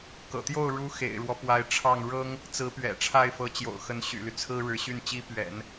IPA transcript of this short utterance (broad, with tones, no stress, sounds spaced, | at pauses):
k ɤ̰˨˩ t̪ j o˥˩ ʊ̯ ɻ u˧˥ x ḛ˨˩ ɪ̯ ɻ w ɔ˦ p w a˧˥ ɪ̯ ʈ͡ʂʰ ɑ˥˩ ŋ ɻ ɤ˥ ŋ | t͡s ɹ̩˧˥ p ɥ ɛ̰˨˩ ʈ͡ʂʰ a˥˩ ɪ̯ f ɤ˧˥ t͡ɕ j o̰˨˩ ʊ̯ x ə˧˥ n ɕ y̰˨˩ l y˦ t͡sʰ ɹ̩˥ ɻ ɻ̩˧˥ ɕ y˥˩ n t͡ɕ i˥ p ɥ ɛ̰˨˩˦ n